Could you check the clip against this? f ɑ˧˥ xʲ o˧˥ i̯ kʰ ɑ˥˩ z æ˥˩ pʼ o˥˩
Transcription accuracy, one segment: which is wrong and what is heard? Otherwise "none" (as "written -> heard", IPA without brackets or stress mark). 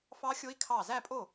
none